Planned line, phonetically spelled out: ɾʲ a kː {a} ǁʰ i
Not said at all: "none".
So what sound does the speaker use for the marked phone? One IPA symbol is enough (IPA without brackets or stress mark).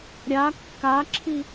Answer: a